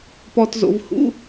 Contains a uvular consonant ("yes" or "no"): no